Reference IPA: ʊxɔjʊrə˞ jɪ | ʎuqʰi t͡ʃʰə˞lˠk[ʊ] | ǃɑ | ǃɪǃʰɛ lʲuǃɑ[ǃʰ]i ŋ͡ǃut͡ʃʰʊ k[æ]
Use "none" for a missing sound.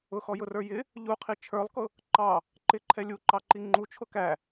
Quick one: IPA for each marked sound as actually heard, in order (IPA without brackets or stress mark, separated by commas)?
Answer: ʊ, ǃ, æ